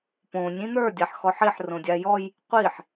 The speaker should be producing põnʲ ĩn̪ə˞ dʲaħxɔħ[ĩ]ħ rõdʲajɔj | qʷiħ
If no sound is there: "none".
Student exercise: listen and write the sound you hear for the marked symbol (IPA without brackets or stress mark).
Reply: i